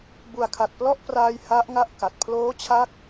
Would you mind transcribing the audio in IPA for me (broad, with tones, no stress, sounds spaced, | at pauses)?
b u˨˩ a̯ kʰ a˨˩ t̚ p l ɔ˥˩ ʔ p r aː˧ j h a˦˥ ʔ ŋ a˥˩ ʔ k a˨˩ t̚ pʰ l oː˦˥ t͡ɕʰ a˦˥ k̚